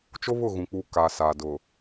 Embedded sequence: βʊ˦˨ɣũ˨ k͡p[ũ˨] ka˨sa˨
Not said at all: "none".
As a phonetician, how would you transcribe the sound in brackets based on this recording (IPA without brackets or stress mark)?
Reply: u˨